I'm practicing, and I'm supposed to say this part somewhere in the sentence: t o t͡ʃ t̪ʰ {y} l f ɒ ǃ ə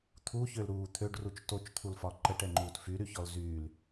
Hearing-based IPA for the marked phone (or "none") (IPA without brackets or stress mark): u